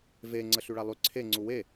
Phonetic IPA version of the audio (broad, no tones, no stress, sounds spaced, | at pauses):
v e ŋ͡ǀ ə ɬ y ɭ a lˠ y ǀʰ e ŋ͡ǀ u w e